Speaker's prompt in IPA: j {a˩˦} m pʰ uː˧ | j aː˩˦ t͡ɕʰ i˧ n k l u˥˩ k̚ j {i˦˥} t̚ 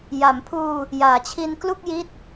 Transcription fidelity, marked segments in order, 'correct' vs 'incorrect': correct, correct

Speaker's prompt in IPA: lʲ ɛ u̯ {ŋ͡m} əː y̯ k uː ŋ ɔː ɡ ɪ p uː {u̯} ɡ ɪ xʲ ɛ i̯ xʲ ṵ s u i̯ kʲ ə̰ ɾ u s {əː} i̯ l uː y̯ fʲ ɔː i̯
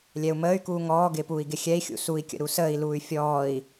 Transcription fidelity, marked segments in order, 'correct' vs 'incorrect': incorrect, incorrect, correct

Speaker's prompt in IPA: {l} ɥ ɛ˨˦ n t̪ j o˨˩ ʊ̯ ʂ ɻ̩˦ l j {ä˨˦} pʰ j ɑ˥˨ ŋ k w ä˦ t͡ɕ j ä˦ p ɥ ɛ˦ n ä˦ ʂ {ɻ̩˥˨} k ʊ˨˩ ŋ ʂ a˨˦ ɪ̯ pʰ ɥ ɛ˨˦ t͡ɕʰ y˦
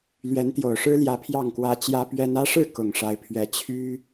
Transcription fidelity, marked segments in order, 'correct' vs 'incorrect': correct, correct, correct

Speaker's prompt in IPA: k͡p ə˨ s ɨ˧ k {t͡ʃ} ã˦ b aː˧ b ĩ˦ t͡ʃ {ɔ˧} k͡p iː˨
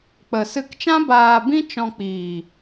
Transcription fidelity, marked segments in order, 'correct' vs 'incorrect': correct, incorrect

